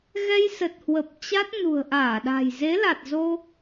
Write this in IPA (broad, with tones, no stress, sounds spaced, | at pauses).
ɣ ɛ˧ j s ə˨˩ t̚ h w ə˨˩ p̚ t͡ɕ a˦˥ t̚ n ṳ˨˩ ə̯ ʔ aː˧˩ ɗ a̤˨˩ j z e˨˦ l a˨˩ t̚ z o˧